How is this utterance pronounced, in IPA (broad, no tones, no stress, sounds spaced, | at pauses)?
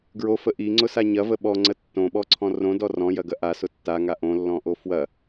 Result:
ɡ ɹ o f ə ʔ i ŋ͡ǀ ʊ s a ɲ ɐ v ə ɓ ɔ ŋ͡ǀ ə tː õ ɓ ɔ ǀʰ ɔ̃ r õ d ɔ r ɔ̃ j ɐ ɡ ɐ ʔ a s ʊ tː a ŋ a ʔ õ lː ɔ̃ ʔ o f w ɐ